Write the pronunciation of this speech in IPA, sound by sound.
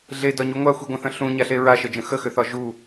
ɮ e d ɒ ɲ u ŋʷ a xʷ i ɡʷ ə̃ θ ə̃ ɬ ũ ɲ a ɬ e ɹ a ʃ ə d͡ʒ ə̃ x ə x ʏ θ ɒ ʒ u

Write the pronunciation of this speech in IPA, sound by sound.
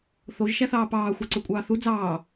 θ o ʒ ʃ æ θ ɑː p ɑː xʷ ɑ ǀ ø kʷʼ ɑː θ u d͡z ɑː

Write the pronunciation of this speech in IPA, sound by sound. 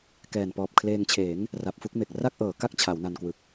k ɛː˨˩ n p ɔː˨˩ p̚ kʰ l eː˧ ŋ t͡ɕʰ eː˩˦ ŋ | r a˨˩ p̚ f u˥˩ k̚ m e˨˩ k̚ r a˥˩ k̚ ʔ ɤː˩˦ k a˦˥ k̚ t͡ɕʰ a˩˦ w n a˧ n k w ɯ˨˩ k̚

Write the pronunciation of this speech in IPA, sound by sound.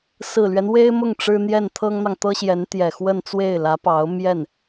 s ɹ̩˨˩ l ɥ ɛ˦ n w e˥ ɪ̯ m ʊ˥˩ ŋ ʈ͡ʂ ɻ̩˥ n̪ j ɛ˥˩ n t̪ʰ ɤ˥ ŋ n̪ ɑ˨ ŋ t̪ ɤ˥ ɕ j ɛ˧˥ n t̪ j ɛ˨˩ x w ə˥˧ n t͡s w e˥˩ ɪ̯ l ä˧˥ p ɑ˧˥ ʊ̯ m j ɛ˥˩ n

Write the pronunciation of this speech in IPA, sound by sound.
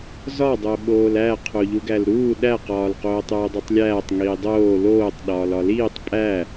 z ɒ dˤ o ɓ oː l æ qʰ o ʎ u ɡ æ l ɾ uː ɗ æ q ɒː l q oː tˤ uː dˤ u tˤ lʲ æː tˤ ŋ iː dˤ oː l oː tˤ ɗ ɒː l ɒ l iː tˤ pʼ æ

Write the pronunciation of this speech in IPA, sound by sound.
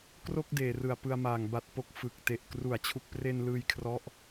k r o˥˩ k̚ d eː˨˩ r ɯ˨˩ a̯ p ɯ˧ a̯ m aː˨˩ ŋ b a˨˩ t̚ p o˨˩ k̚ f ɯ˨˩ k̚ t e˨˩ ʔ k r u˩˦ a̯ t͡ɕʰ u˨˩ k̚ p r e˧ n l ɯː˧ j kʰ r ɔ˦˥ ʔ

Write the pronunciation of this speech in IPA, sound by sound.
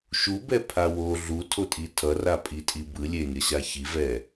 ʃ u b ɛ pʰ a w o ɮ u tʰ o tʼ i tʰ ʌ r a pʼ i tʼ i b ɯ lʲ e nʲ ʌ ɕ a ç i v ɛ

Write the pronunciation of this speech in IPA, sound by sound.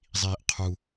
zˤ iː ʔ qʰ u

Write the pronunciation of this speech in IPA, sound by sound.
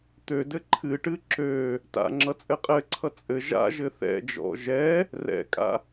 t̪ ø d ɘ ǃʰ ɨ ʈ ɨ ǁ ø | t a̰ ŋ͡ǁ ʌ t͡sʼ ɘ qʼ ɘ ǀʰ ʌ t͡sʼ ɘ ʒ a̰ ʒ ɘ θ ɛ̰ d͡ʒ ɔ̰ ʒ ɛ | r ɛ̰ kʼ a̰

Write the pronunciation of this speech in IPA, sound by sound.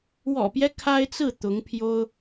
w ɔ̰˨˩ p j ɛ˦ kʰ a˥ ɪ̯ t͡s ɹ̩˥˩ t̪ ʊ˧˥ ŋ pʰ j o˥ ʊ̯

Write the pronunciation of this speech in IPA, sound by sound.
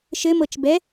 ʃ ɘ m ɤ t͡ʃ b ɛ

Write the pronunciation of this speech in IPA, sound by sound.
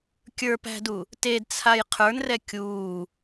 kʲ ə˞ p æ̤ d u | t e d t͡sʰ a j qʰ ə˞ n r ɛ kʲ uː

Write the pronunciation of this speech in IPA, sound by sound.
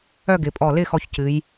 œ˥˧ ɡ ɪ˩˧ pʼ ɔ˧˩ l ɪ˥˧ x ɔ˧ ç c ɨ˩˧ j

